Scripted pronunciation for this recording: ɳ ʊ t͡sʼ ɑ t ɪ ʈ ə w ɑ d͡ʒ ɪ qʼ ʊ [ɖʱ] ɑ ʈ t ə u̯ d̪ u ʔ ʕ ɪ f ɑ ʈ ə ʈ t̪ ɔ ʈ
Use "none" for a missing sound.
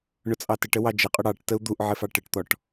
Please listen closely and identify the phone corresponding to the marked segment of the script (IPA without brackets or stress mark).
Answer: ɽ